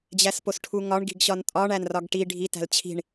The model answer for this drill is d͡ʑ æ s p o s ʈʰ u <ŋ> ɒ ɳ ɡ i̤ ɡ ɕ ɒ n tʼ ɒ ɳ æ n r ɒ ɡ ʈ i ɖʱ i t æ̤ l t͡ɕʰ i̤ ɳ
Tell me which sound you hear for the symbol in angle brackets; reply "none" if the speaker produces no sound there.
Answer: ŋ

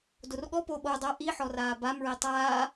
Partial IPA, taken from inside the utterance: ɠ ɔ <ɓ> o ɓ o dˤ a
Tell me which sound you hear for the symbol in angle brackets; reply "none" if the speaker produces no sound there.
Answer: p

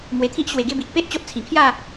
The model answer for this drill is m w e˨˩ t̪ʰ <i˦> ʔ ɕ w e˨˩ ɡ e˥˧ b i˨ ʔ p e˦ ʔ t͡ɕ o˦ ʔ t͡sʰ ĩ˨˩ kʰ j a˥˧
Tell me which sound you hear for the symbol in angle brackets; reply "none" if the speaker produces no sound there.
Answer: i˦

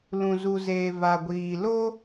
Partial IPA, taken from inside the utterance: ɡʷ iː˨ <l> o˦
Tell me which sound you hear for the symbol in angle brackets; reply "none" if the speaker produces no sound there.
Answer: l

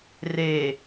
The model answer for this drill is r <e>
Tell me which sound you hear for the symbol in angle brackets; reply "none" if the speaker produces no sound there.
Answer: e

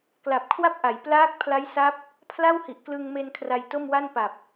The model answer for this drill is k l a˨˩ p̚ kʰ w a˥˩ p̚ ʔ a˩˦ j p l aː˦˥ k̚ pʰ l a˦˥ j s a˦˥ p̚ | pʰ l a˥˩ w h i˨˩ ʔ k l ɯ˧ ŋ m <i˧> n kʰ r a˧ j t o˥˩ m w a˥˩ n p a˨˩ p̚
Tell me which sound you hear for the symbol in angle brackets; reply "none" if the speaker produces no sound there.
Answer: e˧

